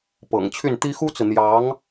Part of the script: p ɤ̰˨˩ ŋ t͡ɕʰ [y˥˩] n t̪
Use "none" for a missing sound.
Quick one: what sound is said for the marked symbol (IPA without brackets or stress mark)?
y˥˩